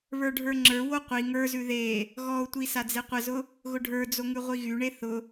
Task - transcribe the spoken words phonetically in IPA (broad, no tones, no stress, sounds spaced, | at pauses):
β ə˞ ɖʱ ə˞ ŋ͡ǁ ə˞ w o qʷ i ŋ ə˞ z ʉ ð e | ɣ ɔ ʊ̯ tʷ i s a d͡z e qʷ ə z ʊ | ɣ ʊ ɖʱ ə˞ d͡z o ŋ ʉ ʁʷ i ɣ y ɳ e θ ʊ